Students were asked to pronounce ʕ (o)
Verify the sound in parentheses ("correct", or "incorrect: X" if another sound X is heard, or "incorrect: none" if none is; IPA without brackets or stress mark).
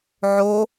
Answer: correct